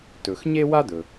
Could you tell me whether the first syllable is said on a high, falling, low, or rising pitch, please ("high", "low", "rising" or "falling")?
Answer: low